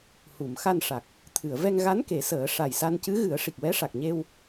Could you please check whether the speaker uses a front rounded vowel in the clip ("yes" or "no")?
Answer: no